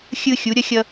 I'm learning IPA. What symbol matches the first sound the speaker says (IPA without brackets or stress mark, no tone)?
xʲ